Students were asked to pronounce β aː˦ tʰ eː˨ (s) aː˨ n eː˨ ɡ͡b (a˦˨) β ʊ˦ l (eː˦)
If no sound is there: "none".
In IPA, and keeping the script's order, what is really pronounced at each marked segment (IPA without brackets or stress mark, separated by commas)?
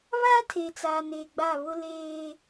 t͡s, a˦˨, eː˦